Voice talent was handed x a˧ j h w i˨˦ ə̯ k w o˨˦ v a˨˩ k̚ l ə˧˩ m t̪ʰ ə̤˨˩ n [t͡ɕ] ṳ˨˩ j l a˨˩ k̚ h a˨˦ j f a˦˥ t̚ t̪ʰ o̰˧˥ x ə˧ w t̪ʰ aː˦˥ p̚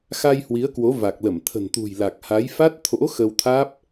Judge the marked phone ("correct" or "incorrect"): incorrect